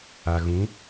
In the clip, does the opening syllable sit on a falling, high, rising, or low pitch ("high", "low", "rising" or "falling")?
low